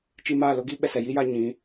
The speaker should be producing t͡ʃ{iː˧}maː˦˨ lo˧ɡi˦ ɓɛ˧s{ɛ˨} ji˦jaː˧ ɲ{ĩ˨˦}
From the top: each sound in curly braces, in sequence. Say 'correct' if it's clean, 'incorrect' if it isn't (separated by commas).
incorrect, correct, correct